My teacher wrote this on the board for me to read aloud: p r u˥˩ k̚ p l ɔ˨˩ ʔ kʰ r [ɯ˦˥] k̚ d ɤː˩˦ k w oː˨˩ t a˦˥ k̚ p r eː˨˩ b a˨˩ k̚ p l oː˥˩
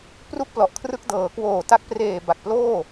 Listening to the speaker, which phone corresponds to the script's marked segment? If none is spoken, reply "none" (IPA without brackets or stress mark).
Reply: ɯ˦˥